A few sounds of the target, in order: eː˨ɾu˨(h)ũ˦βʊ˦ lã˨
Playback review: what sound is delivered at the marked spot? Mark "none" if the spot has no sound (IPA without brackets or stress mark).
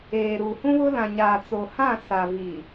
h